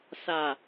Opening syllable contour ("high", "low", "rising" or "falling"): low